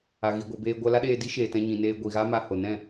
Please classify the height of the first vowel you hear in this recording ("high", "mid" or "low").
low